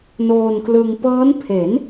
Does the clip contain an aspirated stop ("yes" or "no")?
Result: yes